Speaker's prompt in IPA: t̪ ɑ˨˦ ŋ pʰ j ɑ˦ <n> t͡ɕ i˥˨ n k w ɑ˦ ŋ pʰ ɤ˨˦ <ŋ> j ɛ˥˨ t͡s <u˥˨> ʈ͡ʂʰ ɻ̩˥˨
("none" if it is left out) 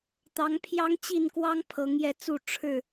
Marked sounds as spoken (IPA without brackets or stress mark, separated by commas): ŋ, ŋ, u˥˨